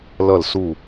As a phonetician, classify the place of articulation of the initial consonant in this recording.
alveolar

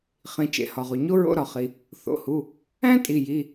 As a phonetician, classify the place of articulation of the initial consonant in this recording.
uvular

